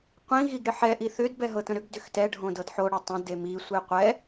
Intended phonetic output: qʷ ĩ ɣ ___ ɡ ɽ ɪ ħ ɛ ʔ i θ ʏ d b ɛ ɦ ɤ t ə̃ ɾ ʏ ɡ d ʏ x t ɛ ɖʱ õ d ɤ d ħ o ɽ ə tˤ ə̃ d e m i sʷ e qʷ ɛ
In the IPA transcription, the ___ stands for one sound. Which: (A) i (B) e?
A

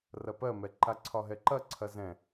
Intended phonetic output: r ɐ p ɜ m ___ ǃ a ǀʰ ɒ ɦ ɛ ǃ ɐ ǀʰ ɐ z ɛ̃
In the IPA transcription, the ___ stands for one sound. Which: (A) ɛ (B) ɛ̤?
A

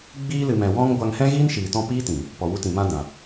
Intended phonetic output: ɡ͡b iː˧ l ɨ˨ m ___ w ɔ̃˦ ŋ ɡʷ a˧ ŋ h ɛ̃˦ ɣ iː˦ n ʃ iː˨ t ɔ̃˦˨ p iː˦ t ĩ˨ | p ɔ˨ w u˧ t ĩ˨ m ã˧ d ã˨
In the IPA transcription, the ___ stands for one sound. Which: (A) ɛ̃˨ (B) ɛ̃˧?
A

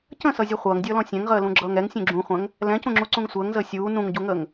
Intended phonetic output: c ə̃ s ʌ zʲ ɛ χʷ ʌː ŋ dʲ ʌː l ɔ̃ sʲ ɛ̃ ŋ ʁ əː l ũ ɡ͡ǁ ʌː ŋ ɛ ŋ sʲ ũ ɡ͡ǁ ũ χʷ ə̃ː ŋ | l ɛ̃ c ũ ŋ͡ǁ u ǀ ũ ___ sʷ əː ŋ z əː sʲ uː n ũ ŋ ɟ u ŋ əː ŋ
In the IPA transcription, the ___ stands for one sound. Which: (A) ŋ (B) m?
A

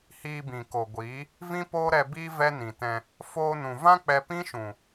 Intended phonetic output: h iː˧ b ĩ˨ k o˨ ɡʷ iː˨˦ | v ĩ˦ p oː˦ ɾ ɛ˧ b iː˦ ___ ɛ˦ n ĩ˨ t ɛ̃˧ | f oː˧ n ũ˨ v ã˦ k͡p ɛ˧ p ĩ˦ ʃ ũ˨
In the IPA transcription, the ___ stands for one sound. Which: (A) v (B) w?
A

